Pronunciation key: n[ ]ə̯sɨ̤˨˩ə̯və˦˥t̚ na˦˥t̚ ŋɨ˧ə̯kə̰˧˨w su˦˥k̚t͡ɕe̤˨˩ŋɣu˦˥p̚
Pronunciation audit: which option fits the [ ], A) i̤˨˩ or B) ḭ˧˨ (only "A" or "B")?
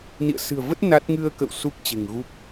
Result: B